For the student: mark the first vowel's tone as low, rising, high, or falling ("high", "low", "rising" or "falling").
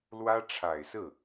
high